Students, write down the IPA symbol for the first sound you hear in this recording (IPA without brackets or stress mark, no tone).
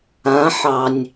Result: ã